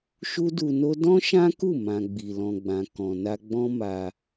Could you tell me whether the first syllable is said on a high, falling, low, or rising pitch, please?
high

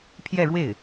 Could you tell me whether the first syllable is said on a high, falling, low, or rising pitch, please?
falling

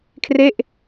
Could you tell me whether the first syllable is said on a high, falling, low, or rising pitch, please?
falling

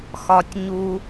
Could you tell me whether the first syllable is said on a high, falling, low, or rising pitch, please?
high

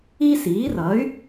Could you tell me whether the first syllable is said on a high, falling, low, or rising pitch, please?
high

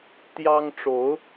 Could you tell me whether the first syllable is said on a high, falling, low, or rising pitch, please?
high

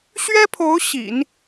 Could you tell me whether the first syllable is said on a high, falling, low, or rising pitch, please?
high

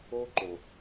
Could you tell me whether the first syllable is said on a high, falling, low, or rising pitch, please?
high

